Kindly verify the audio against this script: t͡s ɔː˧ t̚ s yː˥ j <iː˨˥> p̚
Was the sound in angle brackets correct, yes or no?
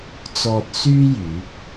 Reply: no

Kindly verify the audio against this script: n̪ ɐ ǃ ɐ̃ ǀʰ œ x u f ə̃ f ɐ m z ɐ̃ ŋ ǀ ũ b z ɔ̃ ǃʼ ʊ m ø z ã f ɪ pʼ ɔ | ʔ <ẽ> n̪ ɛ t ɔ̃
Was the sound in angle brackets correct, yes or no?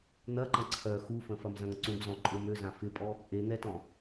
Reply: no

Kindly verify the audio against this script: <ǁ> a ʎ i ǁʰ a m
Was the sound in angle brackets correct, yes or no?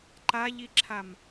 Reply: no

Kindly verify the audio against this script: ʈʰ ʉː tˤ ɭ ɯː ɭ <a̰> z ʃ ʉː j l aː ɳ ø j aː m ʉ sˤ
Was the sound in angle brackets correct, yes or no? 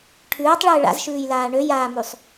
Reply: yes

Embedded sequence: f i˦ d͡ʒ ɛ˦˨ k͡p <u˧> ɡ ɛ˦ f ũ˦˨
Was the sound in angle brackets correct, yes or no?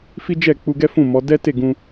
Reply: yes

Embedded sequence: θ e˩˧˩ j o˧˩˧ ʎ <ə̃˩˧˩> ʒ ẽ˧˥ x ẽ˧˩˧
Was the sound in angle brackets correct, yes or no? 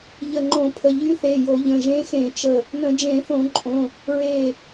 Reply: yes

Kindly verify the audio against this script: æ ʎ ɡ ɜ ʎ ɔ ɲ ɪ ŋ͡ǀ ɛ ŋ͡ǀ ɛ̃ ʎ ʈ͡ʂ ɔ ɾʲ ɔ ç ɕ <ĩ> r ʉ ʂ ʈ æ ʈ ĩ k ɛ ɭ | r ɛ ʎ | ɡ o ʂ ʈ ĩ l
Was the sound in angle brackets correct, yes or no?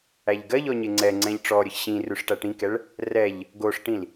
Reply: yes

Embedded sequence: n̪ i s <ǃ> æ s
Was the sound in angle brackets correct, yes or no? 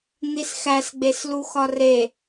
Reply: no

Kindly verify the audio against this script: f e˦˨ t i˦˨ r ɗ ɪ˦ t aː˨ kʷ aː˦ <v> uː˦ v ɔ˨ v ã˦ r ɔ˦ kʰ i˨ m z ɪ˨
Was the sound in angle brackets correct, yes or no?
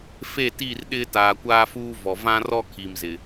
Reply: no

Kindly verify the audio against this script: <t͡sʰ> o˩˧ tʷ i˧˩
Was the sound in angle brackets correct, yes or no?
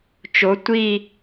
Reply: no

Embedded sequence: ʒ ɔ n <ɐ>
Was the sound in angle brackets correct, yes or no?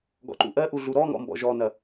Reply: yes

